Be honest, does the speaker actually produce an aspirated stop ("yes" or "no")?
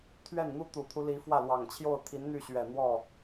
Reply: yes